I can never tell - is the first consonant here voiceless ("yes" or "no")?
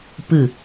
yes